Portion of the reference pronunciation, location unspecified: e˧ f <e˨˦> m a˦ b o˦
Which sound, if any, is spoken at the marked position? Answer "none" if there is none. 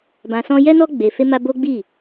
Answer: e˦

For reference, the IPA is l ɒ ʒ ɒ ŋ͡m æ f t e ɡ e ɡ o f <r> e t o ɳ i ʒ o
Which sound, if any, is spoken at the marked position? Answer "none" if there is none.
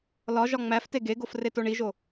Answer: r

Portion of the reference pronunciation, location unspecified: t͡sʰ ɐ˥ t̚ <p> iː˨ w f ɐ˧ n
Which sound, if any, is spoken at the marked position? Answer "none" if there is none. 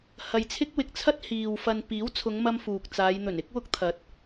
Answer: h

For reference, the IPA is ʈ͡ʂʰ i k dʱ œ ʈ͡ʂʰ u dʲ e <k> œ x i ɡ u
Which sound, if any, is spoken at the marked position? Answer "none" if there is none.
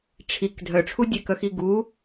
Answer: k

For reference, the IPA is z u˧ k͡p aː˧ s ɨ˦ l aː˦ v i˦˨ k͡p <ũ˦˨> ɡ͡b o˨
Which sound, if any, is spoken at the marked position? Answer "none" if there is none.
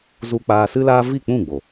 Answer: ũ˦˨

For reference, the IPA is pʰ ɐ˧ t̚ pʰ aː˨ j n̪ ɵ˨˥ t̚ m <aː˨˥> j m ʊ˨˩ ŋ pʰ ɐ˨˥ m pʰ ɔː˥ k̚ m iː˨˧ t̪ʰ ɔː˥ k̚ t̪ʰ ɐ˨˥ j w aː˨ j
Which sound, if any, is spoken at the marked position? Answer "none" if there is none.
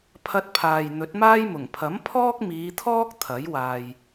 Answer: aː˥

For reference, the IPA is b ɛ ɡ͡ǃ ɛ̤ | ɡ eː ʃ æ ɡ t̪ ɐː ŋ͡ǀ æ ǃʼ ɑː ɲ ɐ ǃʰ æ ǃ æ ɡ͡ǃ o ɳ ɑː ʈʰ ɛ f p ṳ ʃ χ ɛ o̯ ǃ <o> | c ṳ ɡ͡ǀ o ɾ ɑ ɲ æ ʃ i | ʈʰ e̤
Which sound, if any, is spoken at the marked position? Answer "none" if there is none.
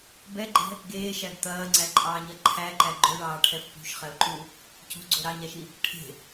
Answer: u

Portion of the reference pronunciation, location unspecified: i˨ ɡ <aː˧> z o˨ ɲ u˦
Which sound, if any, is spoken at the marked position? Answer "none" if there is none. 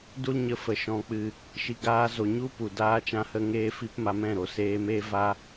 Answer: aː˧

